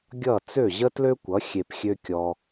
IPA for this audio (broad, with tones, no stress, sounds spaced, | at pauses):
ɡʲ ʌ˥˩ t͡s ø˥˩ ʑ ə˥ t l ø˥ kʷ ʌ˩˥ xʲ e˧ p xʲ ø˥ kʲ ɔ˧